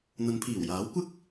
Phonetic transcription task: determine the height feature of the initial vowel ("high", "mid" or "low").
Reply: low